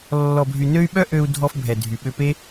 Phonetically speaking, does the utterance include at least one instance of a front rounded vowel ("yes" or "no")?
yes